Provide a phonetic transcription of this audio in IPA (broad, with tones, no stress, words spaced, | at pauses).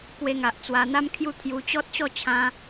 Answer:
kwe˧ŋa˨ʔ t͡swa˧n̪a˦mkʰju˥˧ t̪ʰju˧ t͡ɕɔ˦t̚ɕɔ˥˧t͡ɕʰã˧